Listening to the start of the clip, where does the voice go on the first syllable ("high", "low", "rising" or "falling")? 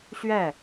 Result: falling